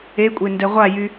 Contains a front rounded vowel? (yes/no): yes